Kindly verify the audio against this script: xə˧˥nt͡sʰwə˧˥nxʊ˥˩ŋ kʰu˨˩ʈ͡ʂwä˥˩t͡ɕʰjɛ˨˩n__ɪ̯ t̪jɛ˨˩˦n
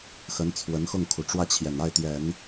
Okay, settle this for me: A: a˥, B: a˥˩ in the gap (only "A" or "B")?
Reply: B